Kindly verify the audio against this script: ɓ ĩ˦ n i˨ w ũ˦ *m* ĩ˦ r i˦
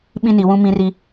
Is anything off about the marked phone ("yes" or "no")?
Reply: no